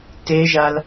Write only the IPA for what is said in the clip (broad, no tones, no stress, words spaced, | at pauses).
teʒal